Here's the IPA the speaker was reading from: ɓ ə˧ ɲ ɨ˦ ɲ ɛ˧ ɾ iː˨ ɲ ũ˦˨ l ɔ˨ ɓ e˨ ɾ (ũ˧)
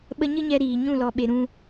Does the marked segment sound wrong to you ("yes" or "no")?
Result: no